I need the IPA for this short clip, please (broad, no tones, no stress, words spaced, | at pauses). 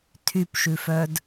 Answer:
tʰypʃʉfœd